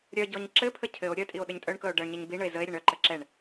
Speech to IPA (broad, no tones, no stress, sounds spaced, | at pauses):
ɾʲ œ ɟ ɔ ɲ ǁ ɘ pʰ ə cʰ ɘ o̯ ɾʲ œ tʼ i o̯ ɗ ɘ ɲ tʼ œ ɳ k ɤ o̯ ɖ ɤ ɳ ɲ ə ɲ b i ɳ ə e̯ z ə e̯ ɾʲ ə ɳ œ ǃ ə ǁ ɛ ɳ